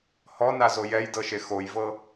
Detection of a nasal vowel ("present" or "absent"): absent